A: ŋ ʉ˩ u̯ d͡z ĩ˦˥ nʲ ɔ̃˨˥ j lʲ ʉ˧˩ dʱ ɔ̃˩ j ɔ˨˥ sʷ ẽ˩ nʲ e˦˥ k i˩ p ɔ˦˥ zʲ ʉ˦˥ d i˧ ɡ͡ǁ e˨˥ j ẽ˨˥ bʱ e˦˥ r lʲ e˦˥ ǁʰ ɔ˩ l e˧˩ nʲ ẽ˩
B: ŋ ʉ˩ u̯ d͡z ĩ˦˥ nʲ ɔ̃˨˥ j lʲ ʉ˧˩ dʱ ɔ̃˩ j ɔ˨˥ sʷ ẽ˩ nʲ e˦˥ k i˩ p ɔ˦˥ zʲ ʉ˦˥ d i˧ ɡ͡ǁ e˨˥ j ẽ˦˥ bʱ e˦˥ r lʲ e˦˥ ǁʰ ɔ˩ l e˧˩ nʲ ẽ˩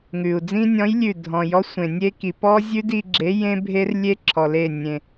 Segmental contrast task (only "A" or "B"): B